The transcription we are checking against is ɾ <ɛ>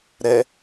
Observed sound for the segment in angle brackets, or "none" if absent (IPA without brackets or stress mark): ɛ